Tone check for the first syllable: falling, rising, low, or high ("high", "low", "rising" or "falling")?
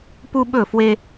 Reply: high